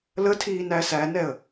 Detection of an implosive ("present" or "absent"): absent